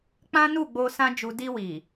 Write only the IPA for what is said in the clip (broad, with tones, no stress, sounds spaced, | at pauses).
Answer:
k͡p ã˦ n u˦˨ ɡ͡b o˧ s ã˦ d͡ʒ u˧ d i˧ w i˨